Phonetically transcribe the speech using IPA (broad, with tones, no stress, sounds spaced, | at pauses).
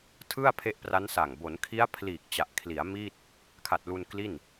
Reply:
tʰ ɯ˥˩ a̯ pʰ e˦˥ ʔ p r a˦˥ n s a˨˩ ŋ b o˩˦ n kʰ i˦˥ a̯ pʰ l iː˨˩ k̚ t͡ɕ a˨˩ ʔ kʰ l i˩˦ a̯ m i˥˩ t̚ | kʰ a˨˩ t̚ l u˧ n k l i˥˩ n